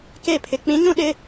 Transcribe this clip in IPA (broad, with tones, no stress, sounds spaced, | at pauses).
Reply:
k e˦˨ pʰ ɪ˨ k͡p ĩ˨˦ ɲ ũ˦ ɗ ɪ˦